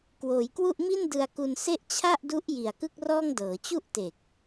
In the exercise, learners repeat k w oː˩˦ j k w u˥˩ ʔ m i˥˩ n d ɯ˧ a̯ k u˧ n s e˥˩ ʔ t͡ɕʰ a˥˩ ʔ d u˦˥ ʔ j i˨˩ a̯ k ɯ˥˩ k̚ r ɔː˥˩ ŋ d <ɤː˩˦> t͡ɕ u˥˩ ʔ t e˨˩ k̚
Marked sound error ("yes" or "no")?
no